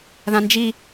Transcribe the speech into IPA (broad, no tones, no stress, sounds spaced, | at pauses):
ð ã n d͡ʒ i